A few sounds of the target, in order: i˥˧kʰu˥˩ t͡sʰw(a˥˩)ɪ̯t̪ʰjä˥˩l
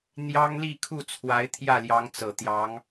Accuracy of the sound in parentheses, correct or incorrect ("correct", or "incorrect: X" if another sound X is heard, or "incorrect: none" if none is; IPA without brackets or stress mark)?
incorrect: a˧˥